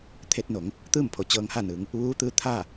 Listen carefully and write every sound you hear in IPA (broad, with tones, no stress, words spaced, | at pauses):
t̪ʰe˧t̚no˩˧ŋ | t̪ɯː˥˨mpʰo˩ t͡ɕɤː˧ŋha˥˨nɯː˩˧ŋ | ʋuː˧˥t̪ɯː˧˥ t̪ʰa˥˨